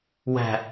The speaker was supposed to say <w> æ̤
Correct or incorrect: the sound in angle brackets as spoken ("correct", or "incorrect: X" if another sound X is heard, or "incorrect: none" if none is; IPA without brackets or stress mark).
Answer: correct